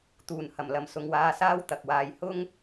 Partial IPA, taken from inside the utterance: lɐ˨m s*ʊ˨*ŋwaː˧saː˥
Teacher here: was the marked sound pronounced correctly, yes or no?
yes